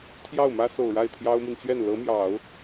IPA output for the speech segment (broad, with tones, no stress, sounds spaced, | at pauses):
t̪ʰ j ɑ˥˩ ʊ̯ m ä˥ s o˨˩ ʊ̯ ɻ a˥˩ ɪ̯ t̪ʰ j ɑ˥ ʊ̯ m i˨ n t͡ɕ ɥ ɛ˥˩ n l ɤ˧˥ m j ɑ˨˩˦ ʊ̯